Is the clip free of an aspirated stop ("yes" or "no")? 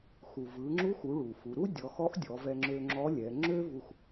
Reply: yes